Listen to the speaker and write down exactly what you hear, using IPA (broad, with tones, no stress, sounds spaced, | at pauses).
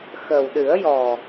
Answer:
x ə˨˩ w ɗ ɨ˨˩˦ ə̯ j ɔ˨˩